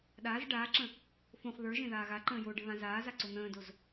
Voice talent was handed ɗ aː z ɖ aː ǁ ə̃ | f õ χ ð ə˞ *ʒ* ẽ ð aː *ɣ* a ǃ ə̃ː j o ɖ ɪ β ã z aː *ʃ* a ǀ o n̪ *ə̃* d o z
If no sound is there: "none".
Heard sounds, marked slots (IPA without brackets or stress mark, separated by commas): ʒ, ɣ, z, ə̃ː